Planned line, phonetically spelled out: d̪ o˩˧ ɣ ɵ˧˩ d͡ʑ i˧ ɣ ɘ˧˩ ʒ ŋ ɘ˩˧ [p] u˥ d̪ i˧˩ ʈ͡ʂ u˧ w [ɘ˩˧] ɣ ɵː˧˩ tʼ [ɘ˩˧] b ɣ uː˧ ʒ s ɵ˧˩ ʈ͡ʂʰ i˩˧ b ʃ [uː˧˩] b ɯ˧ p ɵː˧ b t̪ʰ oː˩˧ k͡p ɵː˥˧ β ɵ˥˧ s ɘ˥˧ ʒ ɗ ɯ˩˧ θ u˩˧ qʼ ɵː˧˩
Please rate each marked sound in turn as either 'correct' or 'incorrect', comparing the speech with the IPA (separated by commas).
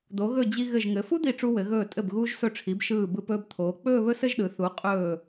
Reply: incorrect, correct, incorrect, incorrect